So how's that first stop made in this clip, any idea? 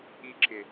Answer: click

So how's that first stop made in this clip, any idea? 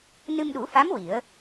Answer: implosive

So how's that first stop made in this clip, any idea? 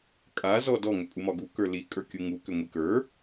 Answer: ejective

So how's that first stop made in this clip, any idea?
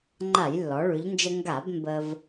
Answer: click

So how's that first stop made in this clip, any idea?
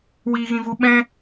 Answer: implosive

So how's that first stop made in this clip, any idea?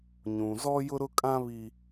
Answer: ejective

